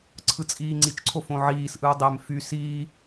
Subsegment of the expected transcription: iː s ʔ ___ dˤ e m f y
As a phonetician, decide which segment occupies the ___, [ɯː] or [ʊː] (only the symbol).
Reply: ɯː